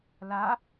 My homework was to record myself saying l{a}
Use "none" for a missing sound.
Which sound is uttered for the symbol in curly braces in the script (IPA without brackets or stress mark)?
a